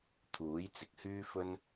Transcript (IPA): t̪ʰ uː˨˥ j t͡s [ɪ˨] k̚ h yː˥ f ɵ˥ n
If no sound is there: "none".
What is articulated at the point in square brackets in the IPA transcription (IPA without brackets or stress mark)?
ɪ˨